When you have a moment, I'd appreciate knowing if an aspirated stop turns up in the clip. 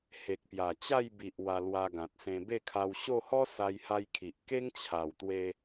yes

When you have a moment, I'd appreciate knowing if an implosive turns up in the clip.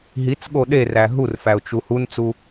yes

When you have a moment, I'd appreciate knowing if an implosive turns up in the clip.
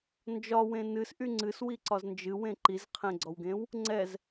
no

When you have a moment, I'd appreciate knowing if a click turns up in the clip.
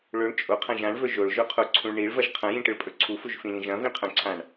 yes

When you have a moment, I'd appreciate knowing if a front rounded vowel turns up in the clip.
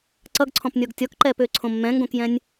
yes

